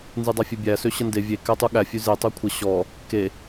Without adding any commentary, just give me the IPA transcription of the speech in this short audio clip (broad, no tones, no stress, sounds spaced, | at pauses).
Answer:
n z ɨ dˤ a fʲ ʉ bʲ æ s ø ɕ ə n d e vʲ e k æ tˤ u ɠ æ fʲ ʉ z e tˤ ø kʷʰ ə ɕ ɔ | k e